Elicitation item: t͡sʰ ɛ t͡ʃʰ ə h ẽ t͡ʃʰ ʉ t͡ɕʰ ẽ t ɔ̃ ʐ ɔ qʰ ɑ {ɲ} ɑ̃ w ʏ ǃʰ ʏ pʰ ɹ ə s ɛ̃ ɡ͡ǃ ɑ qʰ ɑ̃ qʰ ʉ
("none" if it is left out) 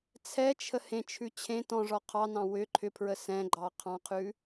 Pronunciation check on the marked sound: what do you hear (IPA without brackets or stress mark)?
n